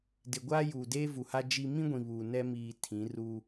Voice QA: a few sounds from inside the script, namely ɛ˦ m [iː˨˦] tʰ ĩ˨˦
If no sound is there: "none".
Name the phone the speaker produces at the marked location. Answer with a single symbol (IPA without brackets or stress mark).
iː˨